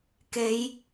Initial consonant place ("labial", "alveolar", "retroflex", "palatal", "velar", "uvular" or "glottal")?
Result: velar